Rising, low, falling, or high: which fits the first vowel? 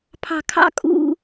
low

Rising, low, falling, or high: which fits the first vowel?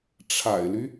low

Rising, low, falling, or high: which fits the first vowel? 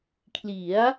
rising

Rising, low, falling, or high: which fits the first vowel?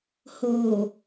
low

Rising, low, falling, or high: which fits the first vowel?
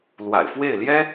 low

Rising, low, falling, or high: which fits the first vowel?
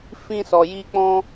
high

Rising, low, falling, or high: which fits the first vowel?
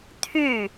falling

